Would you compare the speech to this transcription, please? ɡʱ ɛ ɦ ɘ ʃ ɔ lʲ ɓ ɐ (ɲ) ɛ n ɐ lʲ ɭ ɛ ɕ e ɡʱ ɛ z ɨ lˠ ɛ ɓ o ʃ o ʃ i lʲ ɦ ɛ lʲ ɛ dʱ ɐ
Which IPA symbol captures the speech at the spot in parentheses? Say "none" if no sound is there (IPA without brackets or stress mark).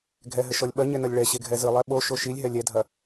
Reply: ɲ